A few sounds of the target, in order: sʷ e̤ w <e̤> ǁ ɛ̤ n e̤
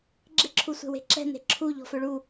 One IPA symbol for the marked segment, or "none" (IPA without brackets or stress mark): e̤